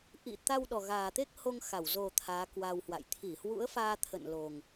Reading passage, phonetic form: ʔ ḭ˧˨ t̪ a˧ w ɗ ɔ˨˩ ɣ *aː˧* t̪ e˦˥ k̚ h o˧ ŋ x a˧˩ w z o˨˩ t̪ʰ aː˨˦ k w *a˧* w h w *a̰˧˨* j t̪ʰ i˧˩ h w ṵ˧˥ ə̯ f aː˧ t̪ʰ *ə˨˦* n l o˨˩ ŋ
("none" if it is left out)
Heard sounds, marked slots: aː˨˩, a˧, a̰˧˨, ə̰˧˨

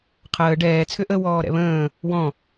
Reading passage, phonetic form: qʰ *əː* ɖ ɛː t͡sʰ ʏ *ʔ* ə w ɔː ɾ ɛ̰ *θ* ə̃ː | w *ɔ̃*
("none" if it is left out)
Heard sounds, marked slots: əː, ʔ, β, ɔ̃

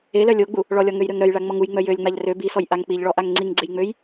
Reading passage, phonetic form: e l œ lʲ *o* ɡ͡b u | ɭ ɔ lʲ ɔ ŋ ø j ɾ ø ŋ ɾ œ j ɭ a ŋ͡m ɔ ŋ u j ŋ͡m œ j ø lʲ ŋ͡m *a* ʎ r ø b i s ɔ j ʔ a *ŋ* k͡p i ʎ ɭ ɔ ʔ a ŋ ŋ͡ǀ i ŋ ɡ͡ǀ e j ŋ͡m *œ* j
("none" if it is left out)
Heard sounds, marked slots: o, a, ŋ, ø

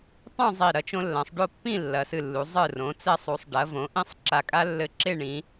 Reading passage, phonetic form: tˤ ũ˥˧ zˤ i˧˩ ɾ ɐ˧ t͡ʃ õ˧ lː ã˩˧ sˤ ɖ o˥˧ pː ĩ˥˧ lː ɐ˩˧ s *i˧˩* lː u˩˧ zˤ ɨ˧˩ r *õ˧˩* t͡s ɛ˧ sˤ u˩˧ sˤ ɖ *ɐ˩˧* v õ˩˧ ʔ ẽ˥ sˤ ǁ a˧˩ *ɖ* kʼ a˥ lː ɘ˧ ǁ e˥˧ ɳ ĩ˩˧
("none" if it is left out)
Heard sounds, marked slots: ɨ˧˩, õ˩˧, ɐ˩˧, none

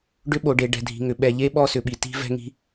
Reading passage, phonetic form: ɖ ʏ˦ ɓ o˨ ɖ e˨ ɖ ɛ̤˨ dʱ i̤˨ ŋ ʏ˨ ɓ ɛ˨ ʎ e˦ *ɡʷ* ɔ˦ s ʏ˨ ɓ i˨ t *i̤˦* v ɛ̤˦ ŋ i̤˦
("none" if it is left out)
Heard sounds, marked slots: ɓ, i̤˦

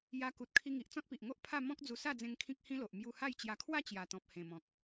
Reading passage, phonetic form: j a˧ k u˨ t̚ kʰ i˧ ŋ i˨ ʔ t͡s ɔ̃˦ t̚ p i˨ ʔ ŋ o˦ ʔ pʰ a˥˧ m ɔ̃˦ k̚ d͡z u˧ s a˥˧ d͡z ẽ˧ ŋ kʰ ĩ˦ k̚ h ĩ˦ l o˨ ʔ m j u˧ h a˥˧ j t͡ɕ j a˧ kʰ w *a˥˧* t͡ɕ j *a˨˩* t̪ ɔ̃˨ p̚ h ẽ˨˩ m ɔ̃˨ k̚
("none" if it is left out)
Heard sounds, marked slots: a˥˧, a˨˩

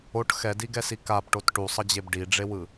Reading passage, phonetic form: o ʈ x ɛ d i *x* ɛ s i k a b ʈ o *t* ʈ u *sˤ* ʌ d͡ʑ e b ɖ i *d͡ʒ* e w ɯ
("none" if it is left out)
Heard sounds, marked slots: ɡ, t, sˤ, ɖ͡ʐ

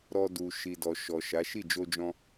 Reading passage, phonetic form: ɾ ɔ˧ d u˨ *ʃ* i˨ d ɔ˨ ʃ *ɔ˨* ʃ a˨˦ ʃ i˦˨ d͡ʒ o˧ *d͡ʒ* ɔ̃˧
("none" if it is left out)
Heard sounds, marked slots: ʃ, ɔ˨, d͡ʒ

